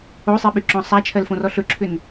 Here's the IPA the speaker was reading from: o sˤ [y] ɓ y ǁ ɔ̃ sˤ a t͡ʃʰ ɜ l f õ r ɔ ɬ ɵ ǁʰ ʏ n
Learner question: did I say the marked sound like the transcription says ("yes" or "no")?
no